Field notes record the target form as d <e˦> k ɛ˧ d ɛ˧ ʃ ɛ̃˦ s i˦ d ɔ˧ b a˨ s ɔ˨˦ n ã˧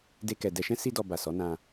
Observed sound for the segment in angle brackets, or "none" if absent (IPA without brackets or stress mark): e˦